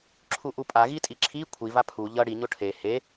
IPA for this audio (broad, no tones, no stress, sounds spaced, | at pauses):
ǁʰ u ʔ u pʼ a ɣ i tʼ i ǁʰ i kʷʰ i v a pʰ u ʎ ʌ ɽ i ɲ o ʈʰ e h e